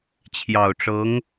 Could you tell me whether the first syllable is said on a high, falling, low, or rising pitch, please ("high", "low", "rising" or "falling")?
low